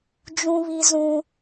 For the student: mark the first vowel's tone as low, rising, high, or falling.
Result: high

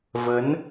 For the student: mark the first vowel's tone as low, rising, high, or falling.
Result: rising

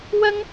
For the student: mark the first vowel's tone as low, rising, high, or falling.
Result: high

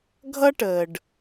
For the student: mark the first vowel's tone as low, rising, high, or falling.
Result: high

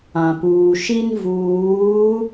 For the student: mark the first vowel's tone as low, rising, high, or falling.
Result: low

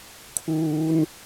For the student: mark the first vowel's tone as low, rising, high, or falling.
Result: high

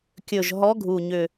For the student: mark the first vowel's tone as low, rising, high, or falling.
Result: low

